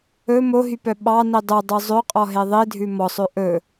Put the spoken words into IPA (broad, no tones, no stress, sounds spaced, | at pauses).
ɵ m o ɦ y p œ ɓ ɑ n i dˤ u dˤ ʉ zˤ ø qʼ ɔ ɦ e ðˤ i dʱ ʉ m ɔ sˤ ø ʔ ɵ